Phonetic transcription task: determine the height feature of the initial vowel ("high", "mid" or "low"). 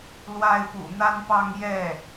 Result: low